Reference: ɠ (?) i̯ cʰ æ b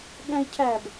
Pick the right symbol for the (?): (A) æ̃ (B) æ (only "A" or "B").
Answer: A